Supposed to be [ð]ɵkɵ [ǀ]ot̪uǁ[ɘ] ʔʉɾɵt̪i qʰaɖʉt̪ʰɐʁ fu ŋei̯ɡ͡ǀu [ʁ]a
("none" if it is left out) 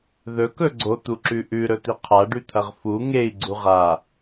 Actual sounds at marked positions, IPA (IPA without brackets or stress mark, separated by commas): ð, ɡ͡ǀ, ʉ, ʁ